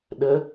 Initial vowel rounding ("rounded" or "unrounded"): unrounded